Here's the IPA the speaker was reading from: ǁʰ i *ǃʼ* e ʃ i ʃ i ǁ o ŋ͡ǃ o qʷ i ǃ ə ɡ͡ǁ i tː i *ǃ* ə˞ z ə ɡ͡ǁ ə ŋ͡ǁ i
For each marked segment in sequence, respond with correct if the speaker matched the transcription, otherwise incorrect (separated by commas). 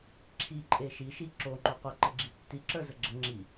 correct, incorrect